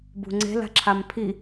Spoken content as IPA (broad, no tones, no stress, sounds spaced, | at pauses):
b ṳ ŋ͡ǀ e̤ l a̤ ǁʰ a m pʰ i